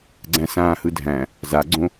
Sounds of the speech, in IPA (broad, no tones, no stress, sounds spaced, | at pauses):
ɡ͡ǀ æ̃ s ãː h ɯ dʱ æ̃ | z a ɡ͡ǀ õ